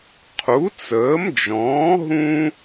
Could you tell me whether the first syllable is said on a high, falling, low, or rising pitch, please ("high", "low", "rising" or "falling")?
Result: rising